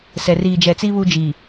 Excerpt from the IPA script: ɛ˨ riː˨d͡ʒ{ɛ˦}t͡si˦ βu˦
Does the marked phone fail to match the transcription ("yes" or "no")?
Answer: yes